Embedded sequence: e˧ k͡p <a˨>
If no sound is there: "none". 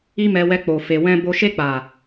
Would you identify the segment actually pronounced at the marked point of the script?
a˨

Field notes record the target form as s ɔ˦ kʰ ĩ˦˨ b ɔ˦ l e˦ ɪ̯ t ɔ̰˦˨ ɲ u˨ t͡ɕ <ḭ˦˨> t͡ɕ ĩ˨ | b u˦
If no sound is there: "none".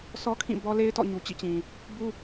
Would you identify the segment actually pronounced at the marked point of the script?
ḭ˦˨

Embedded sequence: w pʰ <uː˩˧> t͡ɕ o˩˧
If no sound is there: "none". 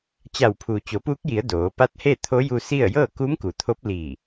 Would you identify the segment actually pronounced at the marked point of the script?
uː˩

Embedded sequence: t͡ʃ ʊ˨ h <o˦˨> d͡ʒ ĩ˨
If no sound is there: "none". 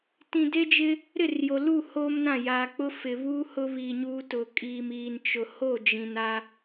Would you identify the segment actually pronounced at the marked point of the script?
o˦˨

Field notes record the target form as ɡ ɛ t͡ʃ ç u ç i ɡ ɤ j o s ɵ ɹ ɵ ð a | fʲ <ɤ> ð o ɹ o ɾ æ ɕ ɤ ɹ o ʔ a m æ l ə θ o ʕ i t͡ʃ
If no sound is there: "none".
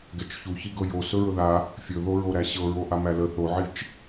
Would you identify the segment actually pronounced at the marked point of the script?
ɵ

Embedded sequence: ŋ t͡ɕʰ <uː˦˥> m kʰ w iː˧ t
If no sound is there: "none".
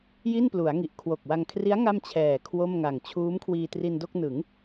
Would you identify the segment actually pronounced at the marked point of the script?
uː˦˥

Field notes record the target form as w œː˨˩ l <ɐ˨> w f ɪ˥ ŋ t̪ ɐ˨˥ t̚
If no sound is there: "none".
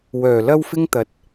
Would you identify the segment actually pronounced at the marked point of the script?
ɐ˥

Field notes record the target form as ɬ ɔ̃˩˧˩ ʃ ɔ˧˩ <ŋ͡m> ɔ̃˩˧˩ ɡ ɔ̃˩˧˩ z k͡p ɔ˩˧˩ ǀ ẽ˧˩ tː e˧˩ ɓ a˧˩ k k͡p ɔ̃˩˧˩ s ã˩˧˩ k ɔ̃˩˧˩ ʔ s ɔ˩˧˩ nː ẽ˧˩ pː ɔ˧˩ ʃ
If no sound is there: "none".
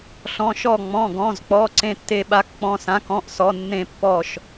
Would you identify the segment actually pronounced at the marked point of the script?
ŋ͡m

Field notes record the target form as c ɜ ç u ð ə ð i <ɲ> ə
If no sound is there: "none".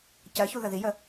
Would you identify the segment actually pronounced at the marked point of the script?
j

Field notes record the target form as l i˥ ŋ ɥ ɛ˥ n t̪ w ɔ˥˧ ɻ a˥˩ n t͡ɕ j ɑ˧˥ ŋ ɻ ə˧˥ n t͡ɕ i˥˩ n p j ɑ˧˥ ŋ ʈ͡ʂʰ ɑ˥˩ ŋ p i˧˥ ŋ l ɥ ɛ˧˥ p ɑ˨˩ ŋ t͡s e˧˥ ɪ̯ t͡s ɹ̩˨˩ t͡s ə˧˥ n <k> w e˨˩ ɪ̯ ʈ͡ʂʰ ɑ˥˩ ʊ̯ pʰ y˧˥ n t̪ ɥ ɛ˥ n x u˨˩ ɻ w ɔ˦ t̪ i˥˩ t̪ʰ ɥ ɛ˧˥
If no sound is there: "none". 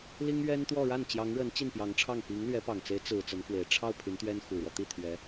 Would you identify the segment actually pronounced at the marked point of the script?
k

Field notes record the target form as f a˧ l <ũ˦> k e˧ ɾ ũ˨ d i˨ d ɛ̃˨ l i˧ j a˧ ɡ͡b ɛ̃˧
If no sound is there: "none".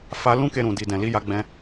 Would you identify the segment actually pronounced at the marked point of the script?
ũ˦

